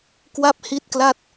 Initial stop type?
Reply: plain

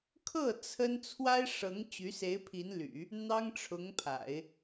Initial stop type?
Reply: aspirated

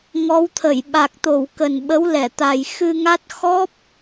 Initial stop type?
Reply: aspirated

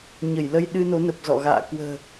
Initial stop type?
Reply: implosive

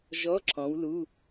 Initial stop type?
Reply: click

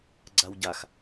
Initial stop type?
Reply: click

